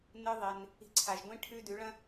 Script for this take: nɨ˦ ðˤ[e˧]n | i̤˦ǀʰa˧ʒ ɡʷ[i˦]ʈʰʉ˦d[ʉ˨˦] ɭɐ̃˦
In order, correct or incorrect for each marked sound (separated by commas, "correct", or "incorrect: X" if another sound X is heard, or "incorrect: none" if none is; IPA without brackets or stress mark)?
correct, incorrect: ĩ˦, correct